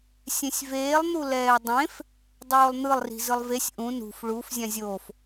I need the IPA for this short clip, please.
sʲẽsʲveːlˠ n̪ulɛːdˤẽf | dˤoːlˠn̪ɯlˠ ri̤zɯlˠvesʲ ʔũ nṳf ɭuf zʲãzʲof

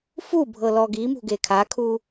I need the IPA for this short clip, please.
fubʱɤ lɔɡimṳ ɡekʰakʰu

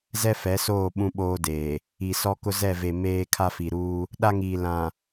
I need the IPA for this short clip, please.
zɛ˦fɛ˨˦soː˦˨ ɓũ˦ɓoː˦deː˨ | i˨sɔ˦kʊ˦ zɛ˦˨ve˨ meː˦ kʰa˦fi˨ɾuː˦ | ɗa˦ŋiː˨ lã˨

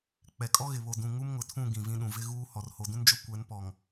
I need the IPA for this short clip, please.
k͡pɛ˨ kʼɔ˦ɣɪ˨βo˨ dũ˨ ŋu˦mŋʊ˨tʰũ˦˨ ɡĩ˨vĩ˦ɗũ˨ vɪ˦ɣuː˦ hɔ˨rho˨dũ˦nd͡ʒʊ˦ kʷɛ˨˦npɔ˨ŋ

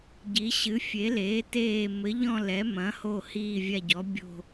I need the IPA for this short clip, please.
ɟi˩˧ɕɨ˩˧ fʲe˩˧leː˩˧teː˨˩ mɘ˩˧ʎɔ̃˨˩ lɛ˩˧mɐ̃˩˧ho˨˩ hiː˨˩ vʲa˨˩ɟɔ˩˧ bʲo̤˨˩

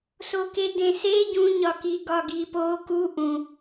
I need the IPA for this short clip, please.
sokedẽse ɟũɲɒki ɡɒɡipo ku ʔũ

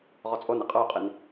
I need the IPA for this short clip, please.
ʁɔt͡sʼon eqʼə˞y̯qʼin

